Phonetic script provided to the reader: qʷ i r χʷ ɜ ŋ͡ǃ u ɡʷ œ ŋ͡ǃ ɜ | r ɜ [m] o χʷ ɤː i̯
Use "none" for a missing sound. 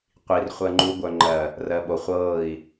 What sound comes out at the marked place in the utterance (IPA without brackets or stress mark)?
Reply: ɓ